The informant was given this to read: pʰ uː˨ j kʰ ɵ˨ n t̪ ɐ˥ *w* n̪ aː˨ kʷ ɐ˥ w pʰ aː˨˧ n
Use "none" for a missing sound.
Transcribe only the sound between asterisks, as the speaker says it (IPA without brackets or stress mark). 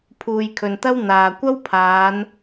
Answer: w